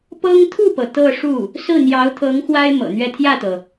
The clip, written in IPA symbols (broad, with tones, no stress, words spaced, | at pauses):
pɤ˥ŋ t̪ʰu˥˩pɤ˩ t̪ɤ˥˧ ʂu˥˩ | sɹ̩˥˩n̪jɑ˧˥ʊ̯t̪ʰɤ˧˥ŋ xwa˥ɪ̯ mɤ̰˨˩n̪ɥɛ˥˧ t̪ʰjä˥˩t̪ɤ˩